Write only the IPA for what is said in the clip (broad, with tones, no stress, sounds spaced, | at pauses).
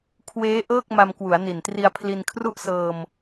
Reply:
kʰ w eː˦˥ ʔ ɤː˥˩ k̚ m a˧ m k w u˩˦ a̯ n i˨˩ n t r i˧ a̯ pʰ l i˧ n kʰ r u˥˩ ʔ s ɤː˧ m